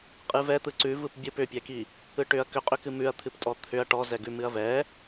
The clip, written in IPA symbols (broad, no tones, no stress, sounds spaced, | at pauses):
qʼ ɨ v ɛ t̪ ɯ ǀ ʉ v ɯ p bʲ ɯ p ʏ pʲ ɛ k i | ɯ ʈ ʏ ɐ̯ k ʏ qʼ ʏ k ɨ m ʉ ɐ̯ t̪ʰ ɨ p tʼ ɔ t̪ʰ ʏ ɐ̯ ʈ ɔ z ɛ ɡ ʉ m ɨ ɐ̯ v ɛ